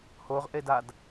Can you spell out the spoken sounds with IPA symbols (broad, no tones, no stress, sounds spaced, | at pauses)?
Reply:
h o ʁ ʔ e d a d